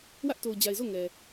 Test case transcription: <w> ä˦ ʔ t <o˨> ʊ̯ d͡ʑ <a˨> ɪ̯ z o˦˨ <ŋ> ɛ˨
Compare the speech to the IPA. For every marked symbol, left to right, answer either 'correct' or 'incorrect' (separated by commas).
correct, correct, correct, correct